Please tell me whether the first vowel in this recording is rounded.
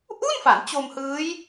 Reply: yes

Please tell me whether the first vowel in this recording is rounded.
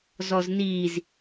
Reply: yes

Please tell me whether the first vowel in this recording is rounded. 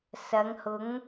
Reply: no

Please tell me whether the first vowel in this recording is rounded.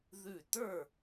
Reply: yes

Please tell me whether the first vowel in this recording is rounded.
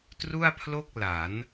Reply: yes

